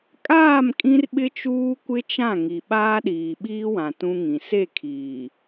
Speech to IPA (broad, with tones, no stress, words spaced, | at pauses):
kʼaː˦˨mkʼĩ˦rɓɪ˦ t͡ʃuː˦kʷɪ˦t͡ʃã˦˨ ŋi˨ ɓaː˦ɗiː˨ɓiː˦wã˨ tũ˦ŋĩ˨ se˦˨kʰiː˨